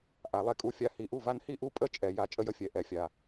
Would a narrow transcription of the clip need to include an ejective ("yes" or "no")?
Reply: yes